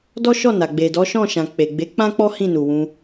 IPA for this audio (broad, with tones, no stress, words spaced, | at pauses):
dɔ˦ ʃɔ˦˨na˨ ɡ͡be˨dɔ˨˦ʃɔ̃˦˨ ʃã˨k͡pe˨ɡ͡be˨˦ k͡pã˦k͡pɔ˦ hĩ˦˨nu˨ wũ˧